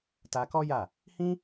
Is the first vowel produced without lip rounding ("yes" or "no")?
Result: yes